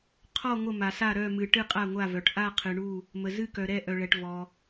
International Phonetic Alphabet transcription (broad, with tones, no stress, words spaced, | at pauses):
qʰɔ˦˨ ŋʷə˦˨ma˨sa˦˨ ɾœ˦˨mɨ˨ ʈɨ˦˨qʼa˦˨ŋʷa˦˨vœ˨ʈ ʔa˦˨qʰɨ˨ɳu˦˨ | mə˨zɨ˦˨kœ˨ ɾɛ˦˨ʔœ˨ɭɛ˨ʈ vɔ˨